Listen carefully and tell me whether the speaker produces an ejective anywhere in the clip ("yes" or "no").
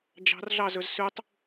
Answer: no